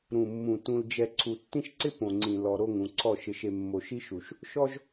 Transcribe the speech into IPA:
ɾ ũ˨ mː ũ˨ t ũ˨ l d͡ʒ ɛ˨ ǀʰ u˨ tː ĩ˦ ʃ ǀ ɪ˦ p õ˨ ŋ͡ǀ ĩ˨ l ɔ˨ ɾ o˦˨ ŋ ũ˨ ǀʰ ɔ˦˨ ʃ ɪ˨ ʃ e˨ mː o˨ ʃ i˦ ʃ u˨ ʃ | ʃ ɔ˦ ʒ

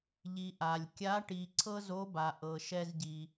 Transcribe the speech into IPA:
ʎ i˩ ʔ a˩ lʲ kʲ a˧˥ ʈ i˩ ǀʰ ɤ˥ z o˧˥ b a˩ ʔ ɤ˩ ʃ ɛ˧ z ɟ i˩

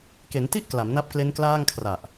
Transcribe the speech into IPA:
k e˩˦ n t i˥˩ ʔ k l a˩˦ m n a˦˥ p̚ k l e˦˥ n k l aː˥˩ ŋ kʰ r a˨˩ ʔ

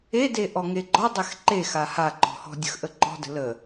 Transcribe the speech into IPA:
e d e ʔ ɔ ŋ e ɡ͡ǃ ɔ dˤ ɛ x ǃ e x a h a ǃ ɔ̤ h ɔ̤ dʲ ə̤ x ʔ ə ǃ ɔ̤ d ə̤ l ə

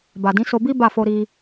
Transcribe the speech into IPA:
b a˨ d ĩ˨˦ s o˧ b i˦ b a˦˨ f o˧ ɾ i˧

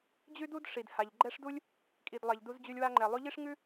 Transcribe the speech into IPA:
d͡ʑ ʉ˥ d u˥ d ʂ i˩ d h a˩ ʎ ɡ͡ǃ ɛ˦ ʂ d u˥ lʲ | kʼ i˩ d lˠ ɛ˩ ʎ d u˦ z d͡ʑ ʉ˦ lʲ w a˥ ŋ͡ǃ ɛ˨ lˠ ʉ˦ ʎ i˥ ʂ ŋ ʉ˥

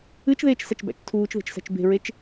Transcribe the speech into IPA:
ɨ t͡ʃ ð eː t͡ʃ s æ t͡ʃ b æ̰ t͡ʃ tʰ uː t͡ʃ ð e̤ t͡ʃ s æ̤ t͡ʃ b e̤ ɹ e t͡ʃ

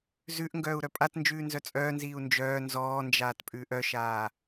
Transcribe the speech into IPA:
z ʉ ʔ ŋ ɡ œː u̯ ɾ œ pʼ a t n d͡ʒ ʉː n z œ t͡sʼ œː n z iː u̯ n d͡ʒ œː n z ɔː n d͡ʒ aː t pʼ ʉː ʔ œ ʃ aː

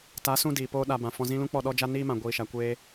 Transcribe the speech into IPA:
t a˨˦ s ũ˧ d iː˨ p oː˦ ɗ a˧ b ã˨ f ɔ̃˧ z ĩ˦ l ũ˦ k͡p ɔ˦˨ ɗ ɔ˦ d͡ʒ a˦ n iː˦ m ã˨ ɡʷ iː˨ ʃ a˨ kʷ eː˧

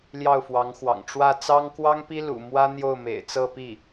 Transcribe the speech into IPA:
l j ɑ˥˩ ʊ̯ f w ɑ˧˥ ŋ x w ɑ̰˨˩ ŋ ʈ͡ʂ w ä˥˩ t͡s ɑ˥ ŋ k w ɑ˥ ŋ p i˥ l ṵ˨˩ m w ä˥ n̪ j o˥˩ ʊ̯ m ḛ˨˩ ɪ̯ t͡s ɤ˥˧ p i˥˩

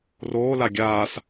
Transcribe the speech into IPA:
r oː l a ɡʲ aː s

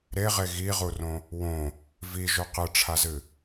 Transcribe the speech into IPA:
ɾ e ʁ e ɣ i ʁ u r õ | w õ | v i ʒ ɵ q ɨ ʈ͡ʂʰ a z ɨ

